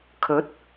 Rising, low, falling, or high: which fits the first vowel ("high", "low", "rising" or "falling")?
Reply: rising